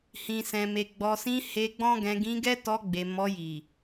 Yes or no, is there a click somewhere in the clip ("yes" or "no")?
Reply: no